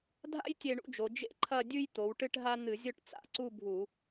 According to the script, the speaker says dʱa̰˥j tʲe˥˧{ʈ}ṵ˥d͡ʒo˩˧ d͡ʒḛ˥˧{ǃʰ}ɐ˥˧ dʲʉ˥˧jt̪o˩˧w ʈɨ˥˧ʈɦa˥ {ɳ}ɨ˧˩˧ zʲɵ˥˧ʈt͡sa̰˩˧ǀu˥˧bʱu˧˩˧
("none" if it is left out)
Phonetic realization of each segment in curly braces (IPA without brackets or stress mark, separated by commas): ɳ, ǃʰ, n̪